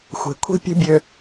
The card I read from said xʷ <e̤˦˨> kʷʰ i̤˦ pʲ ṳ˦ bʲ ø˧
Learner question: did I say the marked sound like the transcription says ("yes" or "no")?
no